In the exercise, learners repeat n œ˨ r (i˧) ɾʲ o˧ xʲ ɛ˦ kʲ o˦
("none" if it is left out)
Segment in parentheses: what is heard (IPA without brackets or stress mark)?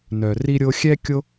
i˧